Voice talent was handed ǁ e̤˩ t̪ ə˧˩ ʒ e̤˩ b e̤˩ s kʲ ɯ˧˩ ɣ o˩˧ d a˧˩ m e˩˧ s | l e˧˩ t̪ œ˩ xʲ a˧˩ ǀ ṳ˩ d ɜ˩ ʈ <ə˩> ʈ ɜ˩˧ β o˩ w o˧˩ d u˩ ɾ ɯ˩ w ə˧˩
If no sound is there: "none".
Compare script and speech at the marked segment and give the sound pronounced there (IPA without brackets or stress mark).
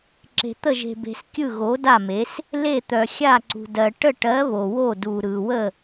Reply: ə˧˩